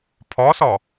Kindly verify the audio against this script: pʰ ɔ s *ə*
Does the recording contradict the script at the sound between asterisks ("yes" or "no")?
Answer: yes